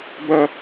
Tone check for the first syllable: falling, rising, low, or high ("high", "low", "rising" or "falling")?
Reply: high